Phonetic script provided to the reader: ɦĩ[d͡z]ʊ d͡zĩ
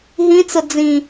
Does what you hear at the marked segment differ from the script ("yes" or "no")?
yes